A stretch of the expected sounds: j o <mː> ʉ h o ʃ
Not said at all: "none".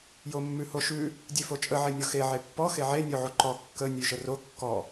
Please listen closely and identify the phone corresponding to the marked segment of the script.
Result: mː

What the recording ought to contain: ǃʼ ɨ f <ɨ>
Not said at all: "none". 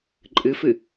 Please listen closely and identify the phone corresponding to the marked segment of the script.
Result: ɨ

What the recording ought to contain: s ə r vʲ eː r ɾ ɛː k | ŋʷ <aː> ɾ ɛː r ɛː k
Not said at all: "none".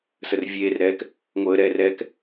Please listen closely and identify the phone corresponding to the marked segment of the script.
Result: əː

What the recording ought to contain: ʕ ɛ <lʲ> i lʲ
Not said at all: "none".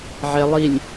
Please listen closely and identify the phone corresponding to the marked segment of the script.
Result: lˠ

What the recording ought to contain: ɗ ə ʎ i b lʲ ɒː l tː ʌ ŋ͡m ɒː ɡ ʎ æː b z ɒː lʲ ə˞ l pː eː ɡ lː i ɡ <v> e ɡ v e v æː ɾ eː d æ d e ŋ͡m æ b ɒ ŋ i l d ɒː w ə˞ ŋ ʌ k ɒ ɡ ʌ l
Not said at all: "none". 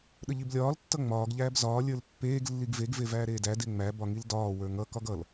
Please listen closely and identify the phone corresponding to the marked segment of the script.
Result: v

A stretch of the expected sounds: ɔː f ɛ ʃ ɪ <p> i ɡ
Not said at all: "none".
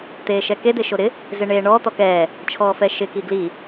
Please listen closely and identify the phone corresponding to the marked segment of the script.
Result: k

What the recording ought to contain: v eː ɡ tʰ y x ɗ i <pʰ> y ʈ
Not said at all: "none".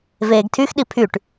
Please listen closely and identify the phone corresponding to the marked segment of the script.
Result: pʰ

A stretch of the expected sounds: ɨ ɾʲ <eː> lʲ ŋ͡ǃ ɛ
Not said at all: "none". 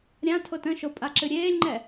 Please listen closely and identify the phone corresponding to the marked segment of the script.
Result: eː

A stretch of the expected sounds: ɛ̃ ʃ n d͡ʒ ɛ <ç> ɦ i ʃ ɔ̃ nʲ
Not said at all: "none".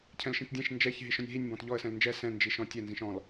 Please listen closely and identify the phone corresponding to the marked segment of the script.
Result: ç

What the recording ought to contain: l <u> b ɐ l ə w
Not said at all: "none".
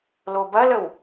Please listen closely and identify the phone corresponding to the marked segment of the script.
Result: o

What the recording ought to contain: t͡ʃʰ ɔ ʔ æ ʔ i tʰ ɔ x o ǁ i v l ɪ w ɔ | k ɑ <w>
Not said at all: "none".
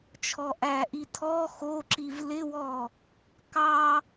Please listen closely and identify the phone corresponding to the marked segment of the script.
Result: none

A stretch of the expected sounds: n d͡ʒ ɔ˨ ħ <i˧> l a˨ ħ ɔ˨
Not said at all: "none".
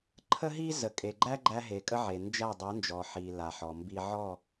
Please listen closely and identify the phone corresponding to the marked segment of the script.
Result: i˨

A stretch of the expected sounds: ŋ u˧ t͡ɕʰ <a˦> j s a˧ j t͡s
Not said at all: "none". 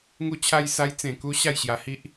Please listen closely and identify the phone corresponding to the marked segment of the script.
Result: a˧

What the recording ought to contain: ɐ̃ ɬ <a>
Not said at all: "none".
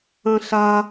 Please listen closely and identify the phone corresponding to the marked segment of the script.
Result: a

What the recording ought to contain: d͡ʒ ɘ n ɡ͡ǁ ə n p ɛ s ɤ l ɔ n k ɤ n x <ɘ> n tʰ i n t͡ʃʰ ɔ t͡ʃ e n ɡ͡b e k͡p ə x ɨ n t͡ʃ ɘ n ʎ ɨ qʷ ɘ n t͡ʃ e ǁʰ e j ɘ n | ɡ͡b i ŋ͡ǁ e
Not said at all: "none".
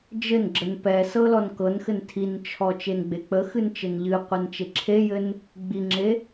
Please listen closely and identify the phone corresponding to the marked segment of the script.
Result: ɘ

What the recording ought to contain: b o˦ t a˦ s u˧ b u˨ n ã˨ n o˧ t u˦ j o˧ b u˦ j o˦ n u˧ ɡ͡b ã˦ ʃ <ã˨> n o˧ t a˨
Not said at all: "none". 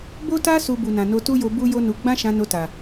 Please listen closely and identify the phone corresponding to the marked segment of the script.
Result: ã˧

